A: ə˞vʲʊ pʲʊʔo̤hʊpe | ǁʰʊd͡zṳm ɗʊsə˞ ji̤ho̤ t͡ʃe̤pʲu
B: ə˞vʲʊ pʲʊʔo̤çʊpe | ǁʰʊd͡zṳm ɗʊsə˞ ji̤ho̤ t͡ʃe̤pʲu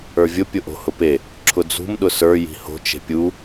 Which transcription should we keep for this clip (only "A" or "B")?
A